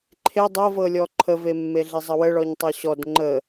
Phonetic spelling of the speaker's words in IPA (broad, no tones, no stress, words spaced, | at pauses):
ǃʰe dˤɤvɤlʲɔ ǃʰəvemːeɮe zˤəwəɭɔɲ tˤɤɕɔd ŋ͡ǃə